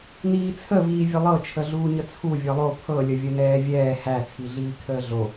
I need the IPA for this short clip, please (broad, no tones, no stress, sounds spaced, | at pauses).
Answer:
n iː t͡sʰ ə v iː vʲ ə lˠ ɤ t͡ʃʰ ə ɮ uː ɲ ə t͡sʰ u vʲ ɤ lˠ o pʰ ɤ lʲ ə vʲ ə n ɛː vʲ ɛː h æ t͡sʰ i ɮ iː kʰ əː ɮ o